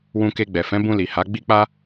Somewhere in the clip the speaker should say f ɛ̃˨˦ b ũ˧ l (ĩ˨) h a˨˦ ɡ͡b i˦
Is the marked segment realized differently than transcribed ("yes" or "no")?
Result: yes